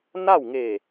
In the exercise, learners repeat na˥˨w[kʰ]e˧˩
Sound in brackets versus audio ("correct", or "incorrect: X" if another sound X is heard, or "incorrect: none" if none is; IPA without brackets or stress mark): incorrect: ŋ